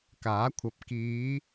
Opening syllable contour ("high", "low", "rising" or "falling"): rising